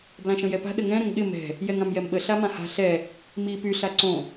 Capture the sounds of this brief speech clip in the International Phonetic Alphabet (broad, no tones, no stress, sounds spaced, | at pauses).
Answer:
b l ã ʃ ə̃ j ɛ p a̤ ɗ ə ŋ ɛ̃ ɾ ə̃ ŋ ɠ ɪ m ɛ̤ | j ɛ ŋ ã m j ɛ m ɓ ə ɬ a m ã h a̤ ɬ ɛ | m i p y ɬ a ǀ õ